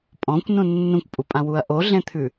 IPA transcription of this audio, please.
pʼ ɔ̃ kʷ n ũ nː ũ kʷ pʼ u pʼ ã w u ɐ̯ ʔ o ɮ ẽ t̪ʰ ʉ

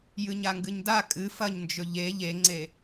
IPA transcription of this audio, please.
j ɨ ɲ a ŋ ɡ ɨ ɲ d a kʼ ɨ f ɐ ɲ n d͡ʒ ɵ ʎ e ʎ e ŋ͡ǀ e

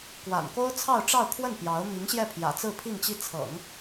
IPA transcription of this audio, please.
k w a̰˨˩ n k o˥ ʊ̯ t͡sʰ ɑ˥˧ ʊ̯ ʈ͡ʂ ɑ˥˧ ʊ̯ kʰ w ə˥˩ n p j ɑ˧˥ ʊ̯ m i˧˥ ŋ ɕ j ɛ˥˩ pʰ j ä̰˨˩ t͡s ɹ̩˥˧ pʰ i˥˧ ŋ t͡ɕ i˥˩ t͡sʰ ɤ̰˨˩˦ ŋ

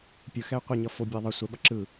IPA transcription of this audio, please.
pʲ ɯ x ɛ y̯ qʷ e ɲ ʌ f o bʲ e i̯ ðˤ ʌ sʷ ɛ ɓ ʌ ǁ ɯ

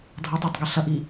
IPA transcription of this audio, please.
dʱ ɔ tˤ ʊ tˤ ɡ ɐ ɬ ɐ ʔ i

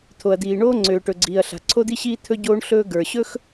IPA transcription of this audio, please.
t̪ʰ o˩ ɐ̯ d̪ iː˩ ɳ oː˥ ŋ͡ǀ øː˩ ʈ ɵ˩ ɡ͡ǀ iː˩ ɐ̯ ɬ a̤˩ ǀʰ o˥ d̪ i˥ ɕ iː˥ t̪ʰ ɵ˥ ɟ oː˥ ɳ ɬ ɵː˥ ɡ ə˞˩ ɕ ɵ˥ x

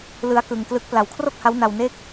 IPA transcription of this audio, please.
l ɯ˦˥ a̯ k ɯ˧ ŋ k l ɯ˦˥ k̚ p l a˨˩ w kʰ r o˥˩ k̚ h a˦˥ w n a˧ w n e˦˥ k̚

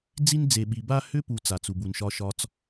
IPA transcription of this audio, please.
d͡z i˥ n d͡z e˨ ɓ i˨ b a˦ h ʏ˥ p u˨ t͡s a˩ t͡s u˩ b u˩ n ʃ ɒ˨ ʃ ɒ˨ t͡s

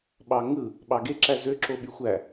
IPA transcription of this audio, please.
ɓ ɑ ŋ ɯ | ɓ ɑ ɡ e ǁ æ z ø ǁ o ɓ y xʷ æ

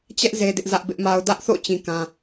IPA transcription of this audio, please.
t͡ɕ ɛ˦ ʔ z e˦ d ɪ˦ ʔ z ä˦ ʔ b ɪ˦ ʔ m a˦ ʊ̯ d ä˦ ʔ θ o̰˦˨ t͡ɕ ĩ˦ k ã˦

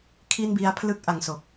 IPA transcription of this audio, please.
kʰ i˥˩ n b i˦˥ a̯ pʰ l ɯ˥˩ k̚ ʔ a˧ ŋ s o˨˩ k̚

